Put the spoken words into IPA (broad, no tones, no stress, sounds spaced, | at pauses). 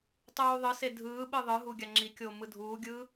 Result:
tˤ uː ðˤ ɯ s e dʱ ɯː ɓ ɯ ðˤ ɯ ɦ u ɡʲ a ŋ͡ǁ i kʲ oː m ɯ dʱ uː ɡʲ ɯː